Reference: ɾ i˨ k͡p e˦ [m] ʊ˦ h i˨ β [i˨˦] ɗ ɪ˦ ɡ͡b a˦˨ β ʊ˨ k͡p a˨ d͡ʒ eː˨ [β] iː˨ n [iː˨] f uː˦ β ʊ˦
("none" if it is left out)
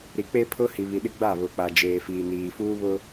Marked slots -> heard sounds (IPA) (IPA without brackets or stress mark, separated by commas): pʰ, i˨, f, iː˨